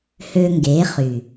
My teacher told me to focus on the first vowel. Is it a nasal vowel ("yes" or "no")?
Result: no